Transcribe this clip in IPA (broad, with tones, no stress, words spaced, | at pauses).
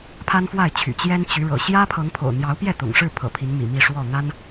pʰa˦nfwa˥˨ɪ̯t͡ɕʰy̰˨˩ t͡ɕjɛ˦nt͡ɕy˨˦ɻɤ̰˨˩ ɕjä˦pʰɤ˨˦ŋ pʰo̰˨˩ʊ̯ n̪jɑ˨˦ʊ̯pjɛ˥˨t̪ʊ̰˨˩ŋʂɻ̩˥˨ pʰɤ̰˨˩pʰi˨˦nmḭ˨˩ mi˥˨ʂwɔ˥˨ n̪a˦n